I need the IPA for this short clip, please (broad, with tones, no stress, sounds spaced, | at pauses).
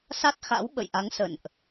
s a˦˥ t̚ x a̰˧˥ w ɓ ə̰˧˨ j ʔ a˨˦ ŋ s ə̰˧˨ n ʔ